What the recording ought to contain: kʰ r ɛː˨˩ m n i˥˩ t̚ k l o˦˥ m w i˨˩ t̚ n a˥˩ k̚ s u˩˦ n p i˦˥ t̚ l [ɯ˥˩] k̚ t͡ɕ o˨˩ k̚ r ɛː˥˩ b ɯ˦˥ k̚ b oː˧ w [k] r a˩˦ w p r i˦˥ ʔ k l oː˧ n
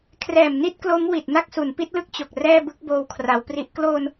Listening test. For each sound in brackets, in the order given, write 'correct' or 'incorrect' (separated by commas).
incorrect, incorrect